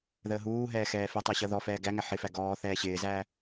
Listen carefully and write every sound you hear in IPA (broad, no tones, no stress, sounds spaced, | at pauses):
ð əː ɦ uː ɦ ɛː x ɛː f i tˤ ə˞ ɕ ʌ ð ɔ f ɛː ɡ æ ŋ æ ħ ɪ f æ ɡ ɔː θ ɛː ɕ ɪː z æ